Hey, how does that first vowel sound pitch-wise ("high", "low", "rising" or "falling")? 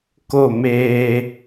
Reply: falling